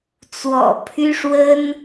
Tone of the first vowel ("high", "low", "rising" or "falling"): low